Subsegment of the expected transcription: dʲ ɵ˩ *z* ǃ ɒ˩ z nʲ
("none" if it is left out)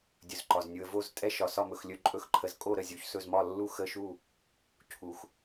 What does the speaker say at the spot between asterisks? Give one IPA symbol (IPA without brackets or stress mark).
z